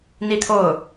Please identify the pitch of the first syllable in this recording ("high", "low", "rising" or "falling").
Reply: falling